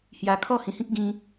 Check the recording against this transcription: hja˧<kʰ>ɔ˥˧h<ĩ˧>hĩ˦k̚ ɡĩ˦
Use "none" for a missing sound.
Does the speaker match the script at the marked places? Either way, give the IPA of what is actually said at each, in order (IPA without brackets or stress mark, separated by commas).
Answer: kʰ, ĩ˧